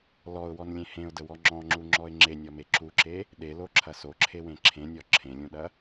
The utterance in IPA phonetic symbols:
l ɔ ʊ̯ w ɔ n lʲ ẽ h ẽ ʊ̯ d ə w ɔ ŋ͡ǁ ɔ̃ ŋ͡ǁ u ŋ͡ǁ ɔ ɪ̯ ŋ͡ǁ e nʲ ɔ m e ǁ u ǁ e | ɗ e l o ǁʰ ɐ s o ǁʰ e w ẽ ǁʰ ẽ nʲ ɔ ǁʰ ẽ lʲ ũ ɗ ɐ

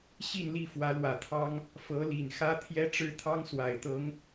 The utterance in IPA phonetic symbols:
ɕ i˥˧ n l i˥˩ f w ä˧˥ l w ä˨˩ t̪ʰ ɑ˥ ŋ | f ɤ˧˥ l i˨˩ n x ä˥ t̪ʰ j ɛ˥ ʈ͡ʂ ɻ̩˥ t̪ʰ ɑ˥ ŋ s w a˨˩ ɪ̯ t̪ ɤ˧˥ ŋ

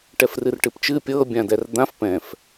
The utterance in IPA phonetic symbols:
ʈ ɛ f r ɨ r ʈ ɨ p t͡ʃ ɨ pʲ ɤ bʲ ã d ɛ r d̪ ã f p ɛ̃ f

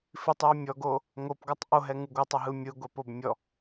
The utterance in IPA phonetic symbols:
f i tˤ j ɛ mʲ ɔ ɡ o | ŋ o p ɡ ɔ tˤ ʔ o ɦ ɛ ŋ ɯ ɡʷ ɨ tˤ ə ɦ ɯ mʲ ɯ ɡʷ ɛ p o b mʲ ɔ

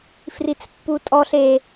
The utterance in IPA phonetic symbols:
f r i t͡s pː u tʼ ɔ ɬ e

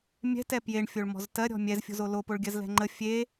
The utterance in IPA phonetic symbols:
mʲ ɛ̤ t ɛ p j e ɳ fʲ o ɭ m ɔ̤ z t ɜ ɾʲ ɔ̤ mʲ ɛ z fʲ o̤ z o l o p o ɭ ɡʲ ɜ z l ɛ̤ ŋ͡ǃ ə fʲ e

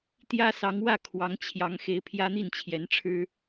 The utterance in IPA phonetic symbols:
t̪ j ä˥ s ɑ˧˥ ŋ w ä˥˩ kʰ w ɑ˧˥ ŋ t͡ɕʰ j ɑ˧˥ ŋ x e˧˥ ɪ̯ pʰ j ä˥ n̪ i˥˩ n t͡ɕʰ j ɛ˧˥ n ʈ͡ʂʰ ɻ̩˥

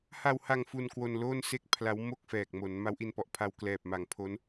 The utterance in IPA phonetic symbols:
h a˧ w h a˧ ŋ f u˧ n k w o˧ n l oː˥˩ n s e˥˩ k̚ pʰ l a˦˥ w m o˥˩ k̚ f ɛː˨˩ k̚ m o˩˦ n m a˦˥ w ʔ i˧ n p ɔ˨˩ ʔ pʰ a˧ w k l ɛː˨˩ p̚ m a˨˩ ŋ pʰ o˦˥ n

